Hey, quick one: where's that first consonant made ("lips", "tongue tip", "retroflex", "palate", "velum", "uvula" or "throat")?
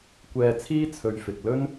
velum